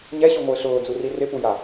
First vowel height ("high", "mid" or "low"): mid